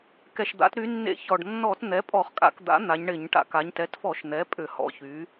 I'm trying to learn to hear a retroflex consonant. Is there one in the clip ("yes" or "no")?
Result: yes